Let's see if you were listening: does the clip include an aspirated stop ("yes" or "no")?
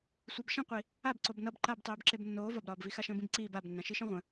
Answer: no